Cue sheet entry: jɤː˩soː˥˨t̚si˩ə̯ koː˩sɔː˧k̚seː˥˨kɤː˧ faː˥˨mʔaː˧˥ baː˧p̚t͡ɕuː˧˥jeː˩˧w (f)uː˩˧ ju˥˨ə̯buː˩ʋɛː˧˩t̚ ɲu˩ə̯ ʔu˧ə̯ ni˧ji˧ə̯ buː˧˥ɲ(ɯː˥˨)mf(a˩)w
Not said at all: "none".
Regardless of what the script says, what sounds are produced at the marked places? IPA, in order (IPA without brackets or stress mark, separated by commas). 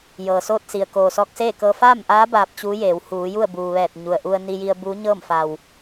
h, ɤː˥˨, a˩